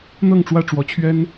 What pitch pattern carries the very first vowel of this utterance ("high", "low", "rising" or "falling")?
falling